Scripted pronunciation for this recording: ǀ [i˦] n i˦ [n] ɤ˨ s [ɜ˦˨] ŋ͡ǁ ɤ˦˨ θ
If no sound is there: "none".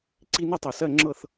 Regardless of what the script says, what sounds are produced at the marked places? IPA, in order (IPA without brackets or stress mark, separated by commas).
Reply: i˦, tˤ, ɜ˦˨